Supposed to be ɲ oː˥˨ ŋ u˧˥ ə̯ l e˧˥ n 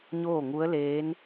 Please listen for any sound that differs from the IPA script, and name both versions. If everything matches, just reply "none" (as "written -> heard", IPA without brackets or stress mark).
e˧˥ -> eː˧˥